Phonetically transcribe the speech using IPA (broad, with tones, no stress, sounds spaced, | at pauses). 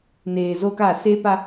n eː˨ z o˦ k a˦˨ s e˦ p a˦